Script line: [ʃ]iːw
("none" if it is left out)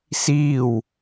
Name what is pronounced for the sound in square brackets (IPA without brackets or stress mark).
s